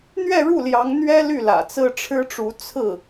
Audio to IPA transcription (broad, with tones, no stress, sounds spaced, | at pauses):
n̪ ɥ ɛ˥˧ ɻ u˥˩ l j ɑ˧˥ ŋ n̪ ɥ ɛ˥ l y˥˩ l ä̰˨˩ t͡s ɹ̩˥ ʈ͡ʂʰ ɻ̩˥ ʈ͡ʂ u˧˥ t͡sʰ ɹ̩˥˩